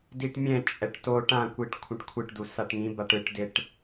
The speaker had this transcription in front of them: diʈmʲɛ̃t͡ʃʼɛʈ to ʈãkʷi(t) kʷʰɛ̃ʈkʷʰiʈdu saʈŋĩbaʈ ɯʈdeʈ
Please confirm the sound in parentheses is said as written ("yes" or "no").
no